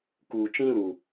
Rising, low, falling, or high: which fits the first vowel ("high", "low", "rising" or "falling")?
low